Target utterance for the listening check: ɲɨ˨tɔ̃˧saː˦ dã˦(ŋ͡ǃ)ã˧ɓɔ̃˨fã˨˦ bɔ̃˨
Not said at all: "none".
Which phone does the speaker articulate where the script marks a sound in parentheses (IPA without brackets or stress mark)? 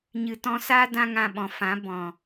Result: ŋ